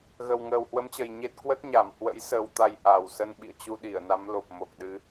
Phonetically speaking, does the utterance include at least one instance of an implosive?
yes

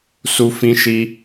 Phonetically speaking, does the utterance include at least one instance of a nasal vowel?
yes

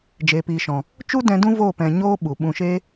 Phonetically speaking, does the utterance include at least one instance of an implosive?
yes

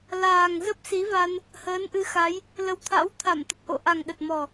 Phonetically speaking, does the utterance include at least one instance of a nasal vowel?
no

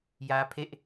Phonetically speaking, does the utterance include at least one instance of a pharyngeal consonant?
no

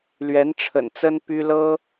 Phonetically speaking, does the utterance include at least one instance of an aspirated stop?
yes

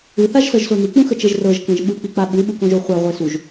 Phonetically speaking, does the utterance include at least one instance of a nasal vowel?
yes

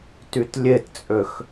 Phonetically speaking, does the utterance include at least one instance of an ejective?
yes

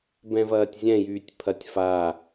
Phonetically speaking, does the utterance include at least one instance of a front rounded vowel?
yes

